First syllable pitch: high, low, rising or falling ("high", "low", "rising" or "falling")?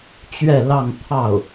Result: falling